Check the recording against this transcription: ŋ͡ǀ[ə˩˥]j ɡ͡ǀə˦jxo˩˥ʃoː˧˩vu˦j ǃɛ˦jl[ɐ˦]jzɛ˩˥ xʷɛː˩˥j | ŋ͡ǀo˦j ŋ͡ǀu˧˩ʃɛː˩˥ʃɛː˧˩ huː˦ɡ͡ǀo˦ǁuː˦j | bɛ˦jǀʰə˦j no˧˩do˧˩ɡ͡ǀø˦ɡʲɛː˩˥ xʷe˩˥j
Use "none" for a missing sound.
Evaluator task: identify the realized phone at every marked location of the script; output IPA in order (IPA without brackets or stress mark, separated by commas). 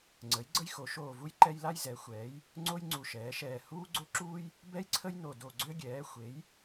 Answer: ə˩˥, a˦